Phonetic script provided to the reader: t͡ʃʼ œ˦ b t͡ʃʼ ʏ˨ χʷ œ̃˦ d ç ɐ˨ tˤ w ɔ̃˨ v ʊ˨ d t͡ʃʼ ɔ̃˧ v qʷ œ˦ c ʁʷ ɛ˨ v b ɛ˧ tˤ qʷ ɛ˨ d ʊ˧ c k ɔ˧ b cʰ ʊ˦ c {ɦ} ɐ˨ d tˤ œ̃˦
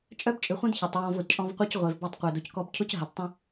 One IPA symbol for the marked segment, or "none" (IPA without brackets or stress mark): ɦ